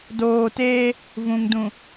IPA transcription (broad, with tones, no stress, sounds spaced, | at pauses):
d oː˨ t eː˦ | v ũ˨ ŋ d ũ˨